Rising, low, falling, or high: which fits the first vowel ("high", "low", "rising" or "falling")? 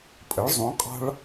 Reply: rising